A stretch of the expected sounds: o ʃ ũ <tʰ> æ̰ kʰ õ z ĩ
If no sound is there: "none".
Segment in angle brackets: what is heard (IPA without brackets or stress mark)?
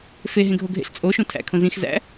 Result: tʰ